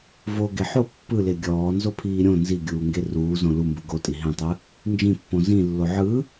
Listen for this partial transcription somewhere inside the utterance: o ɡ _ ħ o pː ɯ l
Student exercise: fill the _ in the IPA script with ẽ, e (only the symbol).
e